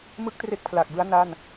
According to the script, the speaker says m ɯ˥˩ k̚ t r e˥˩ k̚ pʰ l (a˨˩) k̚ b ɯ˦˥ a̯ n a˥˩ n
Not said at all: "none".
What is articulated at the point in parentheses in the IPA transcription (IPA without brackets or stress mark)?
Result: a˨˩